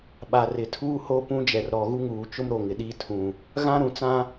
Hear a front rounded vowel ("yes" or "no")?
no